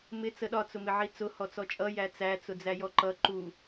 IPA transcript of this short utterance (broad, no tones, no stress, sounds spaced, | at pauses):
m ɪ t͡s ə ɗ ɒ t͡s ʊ m ɪ ʕ i t͡s ʊ h ɔ t͡s ɔ t͡ʃʼ ʌ j æ t͡s æ t͡s ʊ d͡z æ j ɔ ǃ ʌ ǃ u